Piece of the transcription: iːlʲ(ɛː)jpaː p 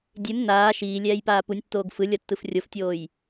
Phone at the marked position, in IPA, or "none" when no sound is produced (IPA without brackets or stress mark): ɛː